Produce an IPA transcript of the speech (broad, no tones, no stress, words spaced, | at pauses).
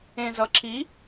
ẽzʌǁi